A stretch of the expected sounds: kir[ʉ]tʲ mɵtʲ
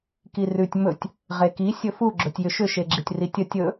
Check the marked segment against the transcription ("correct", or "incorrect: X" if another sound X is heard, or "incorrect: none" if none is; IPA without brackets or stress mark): correct